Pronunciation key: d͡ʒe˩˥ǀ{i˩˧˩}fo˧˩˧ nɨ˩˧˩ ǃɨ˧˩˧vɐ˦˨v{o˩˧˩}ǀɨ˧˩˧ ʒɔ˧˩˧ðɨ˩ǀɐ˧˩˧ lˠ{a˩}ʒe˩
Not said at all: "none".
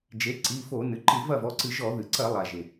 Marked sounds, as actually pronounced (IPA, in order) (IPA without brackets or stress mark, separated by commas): i˩˧˩, ɔ˩˧˩, a˩